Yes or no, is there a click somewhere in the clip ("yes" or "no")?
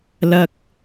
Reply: no